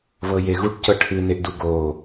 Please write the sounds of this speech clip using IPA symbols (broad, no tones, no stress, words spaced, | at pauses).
βɤjeɣuʈcɤ ʈʰɨneʔdu ɡo